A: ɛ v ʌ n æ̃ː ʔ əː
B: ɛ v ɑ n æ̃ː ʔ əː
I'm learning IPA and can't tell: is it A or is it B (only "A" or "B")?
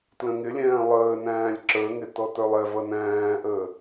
A